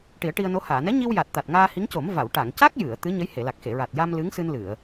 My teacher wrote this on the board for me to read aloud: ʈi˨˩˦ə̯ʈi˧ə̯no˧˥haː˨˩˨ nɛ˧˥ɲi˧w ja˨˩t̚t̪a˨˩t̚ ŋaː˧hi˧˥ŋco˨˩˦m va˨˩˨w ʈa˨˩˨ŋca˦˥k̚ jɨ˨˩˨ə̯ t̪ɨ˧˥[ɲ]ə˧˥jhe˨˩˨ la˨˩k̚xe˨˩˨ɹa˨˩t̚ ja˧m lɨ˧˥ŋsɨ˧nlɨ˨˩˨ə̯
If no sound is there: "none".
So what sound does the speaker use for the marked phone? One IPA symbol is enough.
ɲ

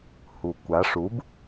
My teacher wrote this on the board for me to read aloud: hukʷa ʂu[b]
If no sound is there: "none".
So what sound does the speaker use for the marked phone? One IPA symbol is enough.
b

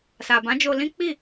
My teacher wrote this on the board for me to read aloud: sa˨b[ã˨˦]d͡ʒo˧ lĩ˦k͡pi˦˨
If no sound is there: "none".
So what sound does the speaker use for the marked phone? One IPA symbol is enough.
ã˨˦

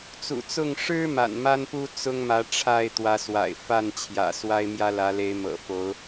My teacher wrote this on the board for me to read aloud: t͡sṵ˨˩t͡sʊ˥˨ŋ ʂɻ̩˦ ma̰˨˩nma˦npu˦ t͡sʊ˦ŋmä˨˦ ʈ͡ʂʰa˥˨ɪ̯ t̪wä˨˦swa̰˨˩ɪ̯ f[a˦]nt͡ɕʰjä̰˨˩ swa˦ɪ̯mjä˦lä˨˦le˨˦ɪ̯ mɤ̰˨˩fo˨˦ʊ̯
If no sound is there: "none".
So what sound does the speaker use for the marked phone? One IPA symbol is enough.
a˥˨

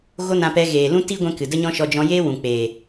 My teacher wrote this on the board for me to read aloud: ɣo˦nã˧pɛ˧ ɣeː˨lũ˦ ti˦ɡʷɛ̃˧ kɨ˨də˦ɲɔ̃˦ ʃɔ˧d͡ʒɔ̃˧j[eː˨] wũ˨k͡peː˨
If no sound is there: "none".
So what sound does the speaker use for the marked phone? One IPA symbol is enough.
eː˦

